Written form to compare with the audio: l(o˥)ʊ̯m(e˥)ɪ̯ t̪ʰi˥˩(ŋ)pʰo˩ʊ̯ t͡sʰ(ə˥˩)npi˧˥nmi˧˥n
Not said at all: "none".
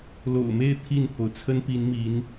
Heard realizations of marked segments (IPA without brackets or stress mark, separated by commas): o̰˨˩, e˥˧, n, ə˥